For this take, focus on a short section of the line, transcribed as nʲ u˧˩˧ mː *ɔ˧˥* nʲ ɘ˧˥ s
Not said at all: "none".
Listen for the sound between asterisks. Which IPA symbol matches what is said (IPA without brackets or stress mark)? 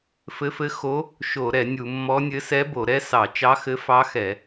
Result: ɔ˧˥